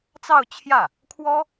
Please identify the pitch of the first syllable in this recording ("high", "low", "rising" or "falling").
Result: falling